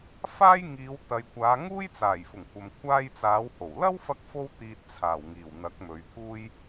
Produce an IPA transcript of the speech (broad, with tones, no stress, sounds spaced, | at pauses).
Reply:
f aː˥ j ŋ iː˨˧ w t̪ ɐ˨ j kʷ aː˨˧ ŋ uː˥ j t͡s aː˨˩ j f ʊ˨˩ ŋ kʷʰ ɐ˨ m kʷʰ aː˧ j t͡s aː˨˧ w h o˨˩ w l ɐ˥ w f ɐ˥ k̚ f o˥ w t̪ iː˧ t̚ t͡sʰ aː˨˩ w ŋ iː˨˩ w n̪ ɐ˨˥ k̚ m ɵ˨˧ ɥ t̪ʰ uː˥ j